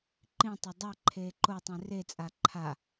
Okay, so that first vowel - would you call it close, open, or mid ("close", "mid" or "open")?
close